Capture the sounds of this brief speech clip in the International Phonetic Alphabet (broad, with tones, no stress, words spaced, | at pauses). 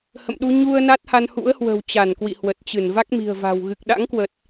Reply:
hə̰˧˨mɗu˧ ɲu˧ə̯ na˦˥t̚ha˧nhṵ˧˥ə̯hwə̤˨˩w t͡ɕa˧˩nkwḭ˧˨hwə˨˩t̚t͡ɕɨ˧˩n va˦˥k̚mi̤˨˩ə̯va̤˨˩w ɣɨ˨˩k̚ɗa̰˧˥ŋkwə˨˩t̚